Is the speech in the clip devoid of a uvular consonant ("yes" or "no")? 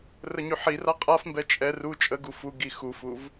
no